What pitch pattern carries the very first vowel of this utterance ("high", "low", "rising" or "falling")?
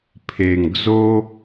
low